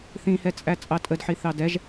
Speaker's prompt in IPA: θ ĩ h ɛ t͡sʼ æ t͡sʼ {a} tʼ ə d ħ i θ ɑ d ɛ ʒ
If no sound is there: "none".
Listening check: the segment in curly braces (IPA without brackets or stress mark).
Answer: ɑ